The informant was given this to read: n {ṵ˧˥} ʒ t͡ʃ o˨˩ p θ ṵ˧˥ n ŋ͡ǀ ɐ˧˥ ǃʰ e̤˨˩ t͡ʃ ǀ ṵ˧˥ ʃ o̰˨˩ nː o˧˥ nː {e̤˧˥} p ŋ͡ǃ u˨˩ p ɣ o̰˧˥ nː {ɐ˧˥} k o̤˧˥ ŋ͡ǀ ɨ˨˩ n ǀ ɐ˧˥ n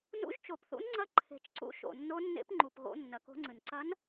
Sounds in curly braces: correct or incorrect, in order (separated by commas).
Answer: correct, incorrect, incorrect